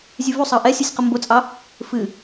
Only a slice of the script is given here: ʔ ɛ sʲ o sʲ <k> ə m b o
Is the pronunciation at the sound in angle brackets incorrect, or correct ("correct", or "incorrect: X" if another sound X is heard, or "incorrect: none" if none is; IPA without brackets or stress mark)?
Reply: incorrect: q